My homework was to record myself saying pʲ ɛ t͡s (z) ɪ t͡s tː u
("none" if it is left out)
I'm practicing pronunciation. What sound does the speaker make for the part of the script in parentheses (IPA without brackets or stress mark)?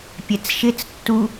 ʃ